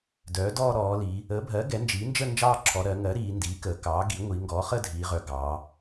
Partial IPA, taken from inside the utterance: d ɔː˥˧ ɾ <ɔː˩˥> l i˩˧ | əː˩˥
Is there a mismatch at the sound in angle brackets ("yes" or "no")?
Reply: yes